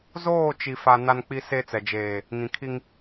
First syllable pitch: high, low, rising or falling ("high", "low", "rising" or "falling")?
falling